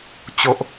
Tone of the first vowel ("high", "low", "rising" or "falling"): low